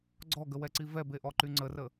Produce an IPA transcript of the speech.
ɡ͡ǀ ɔ ɡ ə w ɛ ǀ i v ɛ b e ʔ ɔ ǃ y ŋ͡ǀ ə r ə

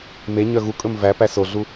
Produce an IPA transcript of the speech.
m e ɲ œ ɣ u kʼ ɵ m v æ p æ s o ɮ u

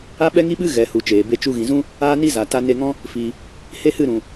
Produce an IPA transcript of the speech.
a˦ ɓ ɛ˦ ŋ i˦ ɓ ɨ˦ ɣ ɛ˨ h u˨ t͡ʃ eː˨ b e˧ t͡ʃ u˧ ɣ ĩ˨ z ũ˦ | aː˦ n i˦ z a˨ t a˧ n e˧ ŋ ɔ̃˦ | f i˨ | h e˦ h ɨ˦˨ ɾ ũ˨

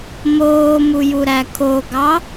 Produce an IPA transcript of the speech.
m oː m u j u ɾ æ kʰ o ɡ ɑ

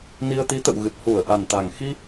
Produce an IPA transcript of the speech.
n i˧ ə̯ t̪ i˨˦ t̪ ə̰˧˨ w ɣ ɨ˨˩ t̚ h u˧˩ ə̯ ʔ a˨˩ n t̪ a˨˩ ŋ x i˧

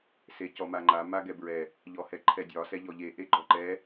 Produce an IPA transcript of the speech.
s e c ɔ m a ŋ͡ǃ a m a ɡ ɛ b ɹ ɛ | ʎ ɔ h ɛ ǃʰ ɛ dʲ ɒ s ɛ ʎ ɔ ʎ e ʔ e ɡ͡ǃ ɔ ǃ ɛ

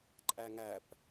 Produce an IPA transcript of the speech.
ǃʼ æ ŋ æ p

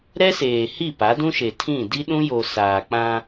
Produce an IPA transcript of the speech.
ɾ ɛ˦ s eː˨ h i˦˨ p a˨˦ d ũ˦ ʃ e˨ tʰ ĩ˦˨ d i˦ ɗ ũ˦ j o˨ s aː˨ k͡p ã˦

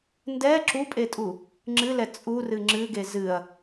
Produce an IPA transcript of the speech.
n d ɛ ǁ u pʼ e tʼ u | ŋ͡ǁ ɨ l ɛ t͡sʼ u r ɨ ŋ͡ǁ ɨ ɡ e z ɨ ɐ̯

